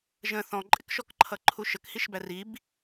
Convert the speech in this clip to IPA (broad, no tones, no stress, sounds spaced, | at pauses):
ʒ ə̃ θ ɔ̃ ǃʼ ɪ k ʃ ɔ k ǃʰ ʌ ǃʰ u ʃ ə k h i ʃ b æ r i b